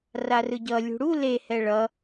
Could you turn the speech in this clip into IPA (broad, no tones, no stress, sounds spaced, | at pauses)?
r a r ɯ ɟ ʌ lʲ ṳ ɽ u l e h ɛ ɭ ʌ